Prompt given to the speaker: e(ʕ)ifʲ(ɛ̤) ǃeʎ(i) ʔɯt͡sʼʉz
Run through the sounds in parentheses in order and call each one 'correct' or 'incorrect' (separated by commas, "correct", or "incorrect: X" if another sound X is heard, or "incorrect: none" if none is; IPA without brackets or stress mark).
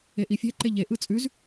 incorrect: ʔ, correct, incorrect: e